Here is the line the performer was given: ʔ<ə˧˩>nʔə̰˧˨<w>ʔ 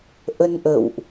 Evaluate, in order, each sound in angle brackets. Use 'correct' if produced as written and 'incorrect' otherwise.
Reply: incorrect: ə˧, correct

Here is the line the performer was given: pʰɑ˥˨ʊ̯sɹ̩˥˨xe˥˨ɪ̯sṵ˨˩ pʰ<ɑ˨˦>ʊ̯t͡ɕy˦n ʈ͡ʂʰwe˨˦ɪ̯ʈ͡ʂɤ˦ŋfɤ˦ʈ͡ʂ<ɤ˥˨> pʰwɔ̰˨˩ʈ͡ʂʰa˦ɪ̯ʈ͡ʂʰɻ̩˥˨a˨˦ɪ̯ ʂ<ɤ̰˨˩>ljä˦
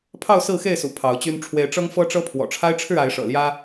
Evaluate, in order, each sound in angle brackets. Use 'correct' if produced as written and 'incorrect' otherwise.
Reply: correct, incorrect: ɤ˦, correct

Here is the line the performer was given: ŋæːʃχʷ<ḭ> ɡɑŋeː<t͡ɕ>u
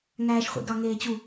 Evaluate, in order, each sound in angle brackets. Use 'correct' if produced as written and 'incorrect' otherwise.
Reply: correct, correct

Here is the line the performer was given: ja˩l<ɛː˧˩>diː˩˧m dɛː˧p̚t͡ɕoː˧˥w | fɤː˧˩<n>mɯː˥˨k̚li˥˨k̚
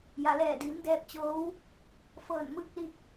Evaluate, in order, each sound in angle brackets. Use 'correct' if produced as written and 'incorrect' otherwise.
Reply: correct, correct

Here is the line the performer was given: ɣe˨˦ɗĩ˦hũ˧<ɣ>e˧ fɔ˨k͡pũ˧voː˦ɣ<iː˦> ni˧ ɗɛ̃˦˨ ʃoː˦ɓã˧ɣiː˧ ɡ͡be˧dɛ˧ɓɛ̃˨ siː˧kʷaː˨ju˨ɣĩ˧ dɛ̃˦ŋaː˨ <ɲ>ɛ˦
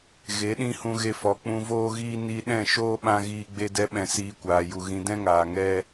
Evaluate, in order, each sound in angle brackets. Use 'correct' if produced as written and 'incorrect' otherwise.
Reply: correct, correct, incorrect: ŋ

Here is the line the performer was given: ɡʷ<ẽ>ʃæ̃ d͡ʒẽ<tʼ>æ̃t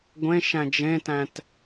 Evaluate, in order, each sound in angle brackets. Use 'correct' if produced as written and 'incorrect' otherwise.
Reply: correct, incorrect: t

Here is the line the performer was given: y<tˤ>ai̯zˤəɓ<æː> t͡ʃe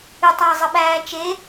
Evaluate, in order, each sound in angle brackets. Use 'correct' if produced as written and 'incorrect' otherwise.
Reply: correct, correct

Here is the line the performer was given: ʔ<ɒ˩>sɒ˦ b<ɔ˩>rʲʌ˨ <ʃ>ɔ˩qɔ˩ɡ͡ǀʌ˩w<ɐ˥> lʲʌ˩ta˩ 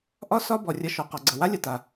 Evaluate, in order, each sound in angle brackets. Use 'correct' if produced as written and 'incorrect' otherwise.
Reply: incorrect: ɒ˦, correct, correct, incorrect: a˥

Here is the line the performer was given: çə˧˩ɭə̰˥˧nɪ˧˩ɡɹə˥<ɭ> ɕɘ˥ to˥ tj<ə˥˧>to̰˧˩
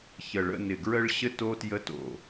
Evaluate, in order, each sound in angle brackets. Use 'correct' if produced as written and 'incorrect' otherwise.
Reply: correct, incorrect: ə˥

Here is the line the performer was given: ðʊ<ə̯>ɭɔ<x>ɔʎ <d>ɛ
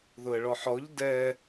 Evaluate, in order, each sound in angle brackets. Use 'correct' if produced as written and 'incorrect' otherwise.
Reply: correct, incorrect: ħ, correct

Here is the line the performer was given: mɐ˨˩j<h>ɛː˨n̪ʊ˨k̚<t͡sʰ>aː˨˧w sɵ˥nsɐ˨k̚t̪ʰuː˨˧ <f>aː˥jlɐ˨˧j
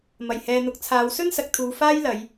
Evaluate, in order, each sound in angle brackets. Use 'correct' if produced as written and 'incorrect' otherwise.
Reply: correct, correct, correct

